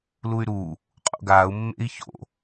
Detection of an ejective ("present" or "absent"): present